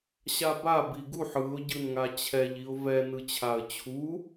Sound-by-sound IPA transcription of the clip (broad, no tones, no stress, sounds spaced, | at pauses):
ɕ a b a b i ɡ u ħ ɯ ʊ̯ ɟ ɯ n ŋ a t͡ɕʰ ɛ ʎ i ʊ̯ v ɛ n ɯ t͡ɕʰ a ə̯ t͡ɕʰ u